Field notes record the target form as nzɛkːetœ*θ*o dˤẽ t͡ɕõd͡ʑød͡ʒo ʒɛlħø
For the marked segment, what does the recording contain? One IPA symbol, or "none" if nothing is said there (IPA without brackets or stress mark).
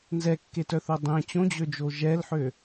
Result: θ